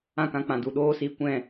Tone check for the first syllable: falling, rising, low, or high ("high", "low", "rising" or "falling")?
falling